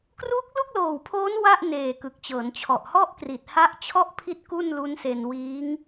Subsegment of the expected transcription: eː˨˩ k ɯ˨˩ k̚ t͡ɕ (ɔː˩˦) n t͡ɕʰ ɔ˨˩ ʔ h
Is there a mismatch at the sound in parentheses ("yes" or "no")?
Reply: yes